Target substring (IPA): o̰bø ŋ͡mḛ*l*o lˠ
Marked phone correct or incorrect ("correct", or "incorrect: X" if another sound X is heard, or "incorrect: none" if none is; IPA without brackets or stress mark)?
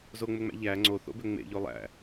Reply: incorrect: ʎ